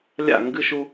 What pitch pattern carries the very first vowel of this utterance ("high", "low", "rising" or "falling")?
falling